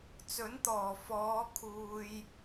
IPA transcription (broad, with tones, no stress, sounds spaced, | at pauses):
t͡s ɵ˨˥ n t̪ ɔː˨˩ f ɔː˨˧ kʰ uː˨ j